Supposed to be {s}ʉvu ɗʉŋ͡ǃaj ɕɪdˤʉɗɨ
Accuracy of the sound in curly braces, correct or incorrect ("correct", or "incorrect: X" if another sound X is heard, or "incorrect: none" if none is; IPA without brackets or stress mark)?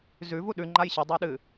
incorrect: z